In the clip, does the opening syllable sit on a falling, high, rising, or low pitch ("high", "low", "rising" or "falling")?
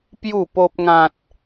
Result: falling